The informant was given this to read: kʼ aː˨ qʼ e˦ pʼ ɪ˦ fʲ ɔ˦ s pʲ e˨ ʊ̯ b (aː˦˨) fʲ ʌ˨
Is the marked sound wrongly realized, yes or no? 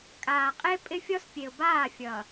no